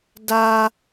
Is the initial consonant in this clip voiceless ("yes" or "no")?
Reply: no